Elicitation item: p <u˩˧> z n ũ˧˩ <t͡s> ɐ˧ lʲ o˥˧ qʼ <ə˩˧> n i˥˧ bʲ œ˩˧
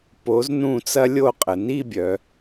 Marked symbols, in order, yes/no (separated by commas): no, yes, yes